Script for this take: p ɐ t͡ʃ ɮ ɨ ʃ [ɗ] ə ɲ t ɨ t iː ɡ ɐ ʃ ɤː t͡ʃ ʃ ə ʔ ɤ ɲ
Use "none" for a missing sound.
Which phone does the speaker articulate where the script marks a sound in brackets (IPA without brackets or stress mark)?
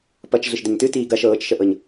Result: d